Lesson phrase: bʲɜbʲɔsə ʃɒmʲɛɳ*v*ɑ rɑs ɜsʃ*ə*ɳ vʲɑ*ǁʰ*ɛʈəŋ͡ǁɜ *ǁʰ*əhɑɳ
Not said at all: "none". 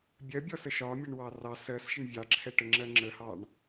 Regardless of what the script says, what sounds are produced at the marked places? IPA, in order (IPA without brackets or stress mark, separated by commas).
w, ə, ǁʰ, ŋ͡ǁ